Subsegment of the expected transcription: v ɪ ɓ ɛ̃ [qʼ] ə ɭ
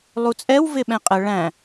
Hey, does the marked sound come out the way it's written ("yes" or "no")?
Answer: yes